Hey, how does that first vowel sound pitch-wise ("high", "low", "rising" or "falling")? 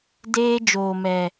high